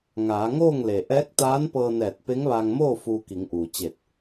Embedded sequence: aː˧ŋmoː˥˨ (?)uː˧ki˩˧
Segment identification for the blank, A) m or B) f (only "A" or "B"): B